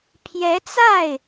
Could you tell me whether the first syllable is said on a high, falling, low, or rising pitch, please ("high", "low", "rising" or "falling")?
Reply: rising